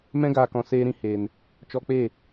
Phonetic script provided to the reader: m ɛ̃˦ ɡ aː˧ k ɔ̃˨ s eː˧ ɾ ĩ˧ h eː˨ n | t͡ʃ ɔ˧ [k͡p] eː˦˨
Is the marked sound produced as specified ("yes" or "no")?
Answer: yes